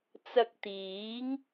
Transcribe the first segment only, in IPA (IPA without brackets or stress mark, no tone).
t͡s